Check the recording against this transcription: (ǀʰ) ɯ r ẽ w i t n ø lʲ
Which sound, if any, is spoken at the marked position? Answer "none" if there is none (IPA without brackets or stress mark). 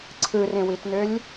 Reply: ǀʰ